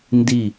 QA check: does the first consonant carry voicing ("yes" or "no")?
yes